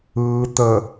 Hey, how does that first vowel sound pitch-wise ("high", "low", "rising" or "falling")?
low